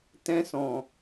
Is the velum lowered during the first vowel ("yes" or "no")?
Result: yes